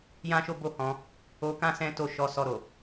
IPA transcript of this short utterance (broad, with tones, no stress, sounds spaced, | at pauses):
j ã˦ ʃ o˦ b o˦ h ɔ̃˧ | o˧ k ã˦ s ɛ̃˦ t o˦˨ ʃ ɔ˨˦ s ɔ˧ ɾ o˨